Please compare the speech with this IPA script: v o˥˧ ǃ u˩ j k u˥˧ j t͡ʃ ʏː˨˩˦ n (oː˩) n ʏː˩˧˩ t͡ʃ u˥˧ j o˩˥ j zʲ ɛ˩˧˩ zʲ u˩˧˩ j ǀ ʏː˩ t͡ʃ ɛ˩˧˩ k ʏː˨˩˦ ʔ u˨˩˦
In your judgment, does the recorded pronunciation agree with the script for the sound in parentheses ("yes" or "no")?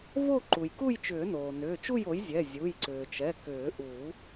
yes